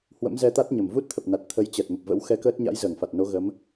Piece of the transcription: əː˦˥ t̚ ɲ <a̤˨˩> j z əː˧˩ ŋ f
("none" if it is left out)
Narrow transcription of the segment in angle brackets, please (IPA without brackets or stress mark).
a̰˧˥